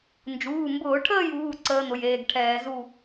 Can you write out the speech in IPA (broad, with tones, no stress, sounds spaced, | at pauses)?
n d͡ʒ uː˩˧˩ m b ʊː˧˩˧ ʈʰ əː˥˨ j uː˩˧˩ ǀ əː˧˥ n̪ ʊ˩˧˩ j eː˩˧˩ ɡ ʈʰ ɛː˧˩˧ z u˥˨